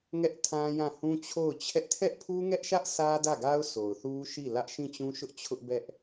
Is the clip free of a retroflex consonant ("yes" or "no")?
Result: yes